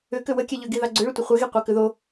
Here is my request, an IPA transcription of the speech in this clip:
ʏ kʏwəkʲɛ ʎʏɡiðɑ ɡ͡ǀʏɭʏtʷə χʷɛɣi qʷɑkʏðo

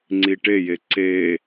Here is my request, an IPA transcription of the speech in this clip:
ŋ͡ǀiʈeje ǀe

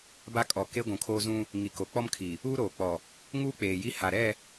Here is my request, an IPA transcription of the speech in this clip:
ba˦ kʼɔ˨ke˦ ɡʷũ˨kʰoː˦zũ˦ | ŋi˨ko˨k͡pɔ˦mkʰi˨ | uː˦ɾoː˨k͡pɔ˨ | ŋuː˦k͡peː˨ji˦ ha˨ɾɛ˦˨

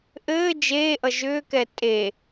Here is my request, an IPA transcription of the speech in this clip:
ʔɘː d͡ʒeːʔʌ ʒʏːkɛ tʼe

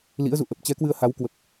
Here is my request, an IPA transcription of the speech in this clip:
lḭ˧˥ə̯zṵ˧˨ ʔə˨˩p̚t͡ɕɛ˨˦ kwɨ˧ə̯ha˨˦w kwə˨˩p̚

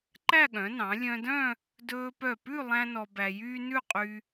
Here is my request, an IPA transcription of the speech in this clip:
ǃæ˥˧ɠœ̃˩˧nɑ̃˩˧ lʲœ̃˧dœ̃˥˧ | dɵː˧pœ˧˩pʉ˥˧ lˠæ̃˥nɔ˧bæ˧jyː˥ nʉ˥˧qʼy˧

